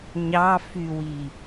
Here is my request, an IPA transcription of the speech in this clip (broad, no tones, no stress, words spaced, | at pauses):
ɲɑfywi